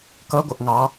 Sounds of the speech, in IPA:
kʌ ɡʷʌʔŋɑ

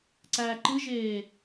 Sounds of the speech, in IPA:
ǀæːǃɨʒeː

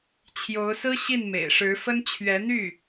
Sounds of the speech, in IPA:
t͡ɕʰjo˧˥ʊ̯sɹ̩˥ ɕi˥˩nmḛ˨˩ɪ̯ʂɻ̩˧˥fə˥n t͡ɕʰɥɛ˧˥n̪y˥˩

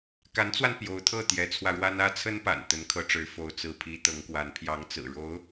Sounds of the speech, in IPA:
ka˧˥nt͡swa˧n pjo˧˥ʊ̯t̪ʰɤ˥˩ t̪jɛ˧˥t͡sʰwä˧ɻwa˥n ä˥t͡sʰə˥npa̰˨˩n t̪ə˧˥nkʰɤ˧˥ʈ͡ʂɻ̩˧˥ fo˧˥ʊ̯t͡sɹ̩˧˥pʰi˧˥ t̪ɤ˧˥ŋkwa˧˥n pʰjɑ˧˥ŋt͡sɹ̩˨˩ ɻo˧˥ʊ̯

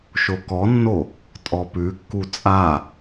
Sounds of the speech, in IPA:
ʃokɔnːo | tʼɔpʉkːu t͡sʼa

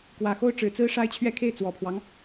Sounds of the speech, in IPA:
kwä˨˩xo˥˩ʊ̯ ʈ͡ʂɻ̩˨˩t͡sɹ̩˥ ʂa˥ɪ̯t͡ɕʰɥɛ˥˧kʰe˥˩ɪ̯ t͡swɔ˨˩pʰwɑ˦ŋ

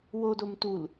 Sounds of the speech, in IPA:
wodom tul

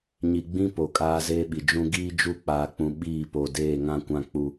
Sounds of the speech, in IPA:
ɲi˨ɡ͡bĩ˦ po˨˦kʼaː˦zeː˦ɓi˨ d͡ʒũ˦ ɡiː˦d͡ʒu˦˨k͡paː˨k͡pũ˨ ɓiː˦˨po˨ deː˦˨ŋã˦kʷã˦k͡pu˦

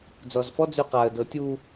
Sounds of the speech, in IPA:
d͡zɔzfɔ d͡zyqaə̯ dɤtʲu

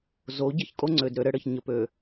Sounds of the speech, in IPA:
zo˨˦ ɟɘ˦çkʼo˦ŋ͡ǀø˨dɾø˨ ɾɘ˦ɽɘ˨ç ɲə˨pø˨

